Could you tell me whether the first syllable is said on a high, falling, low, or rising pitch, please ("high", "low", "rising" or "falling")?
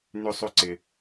high